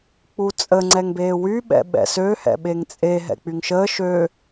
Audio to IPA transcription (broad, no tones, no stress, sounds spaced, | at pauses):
k͡p u t͡sʼ ə ŋ͡ǀ ɛ ŋ b eː w y ɓ ɛ̰ ɓ ɛ̰ s ø h ɛ̰ ɓ e ŋ t͡sʼ e ɦ ɛ̰ k͡p y ŋ ʃ əː ʃ øː